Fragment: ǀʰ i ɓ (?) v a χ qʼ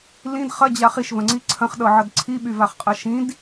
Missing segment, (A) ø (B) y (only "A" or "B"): B